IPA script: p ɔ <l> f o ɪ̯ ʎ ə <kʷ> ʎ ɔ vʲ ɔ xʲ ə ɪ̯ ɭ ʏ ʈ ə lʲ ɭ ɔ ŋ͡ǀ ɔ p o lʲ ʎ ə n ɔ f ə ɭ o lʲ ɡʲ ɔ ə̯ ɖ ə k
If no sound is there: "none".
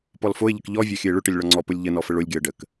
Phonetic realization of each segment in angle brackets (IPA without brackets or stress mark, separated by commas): l, k